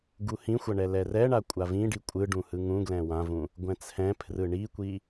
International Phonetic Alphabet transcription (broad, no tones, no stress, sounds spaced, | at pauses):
ɡ u h ĩ xʷ ʌ ɳ ɛ l ɛ r ɛ ɳ a kʷʼ a v ĩ ɖ i kʷʼ ɯ ɖ ũ h ɯ ŋ ũ ɡ l ɛ̃ w ã v ũ | ɡʷ ɛ̃ t͡sʰ ɛ̃ pʰ r ɯ ɳ i kʷ i